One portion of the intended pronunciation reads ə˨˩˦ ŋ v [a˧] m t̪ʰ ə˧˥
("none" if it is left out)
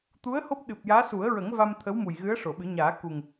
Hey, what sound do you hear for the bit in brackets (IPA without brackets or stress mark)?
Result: a˧